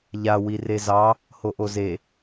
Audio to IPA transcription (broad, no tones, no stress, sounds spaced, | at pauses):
ʎ a w i r e z ɑ | h o ʔ o z e